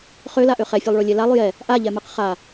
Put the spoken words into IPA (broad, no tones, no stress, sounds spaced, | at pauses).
χ ø l a ʔ ø χ ɛ fʲ o lˠ ɭ o lʲ ɛ l a lˠ j ɛ | ʔ a ʎ ɛ m ɯ q χ a